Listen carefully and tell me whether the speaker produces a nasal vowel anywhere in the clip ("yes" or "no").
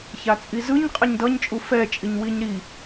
no